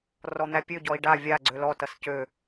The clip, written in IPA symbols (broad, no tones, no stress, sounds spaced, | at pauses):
r ɔ n̪ æ pʲ ø ɟ ɔ i̯ ɖ a vʲ a ɡ͡ǀ ø l ɔ t ʌ s c ø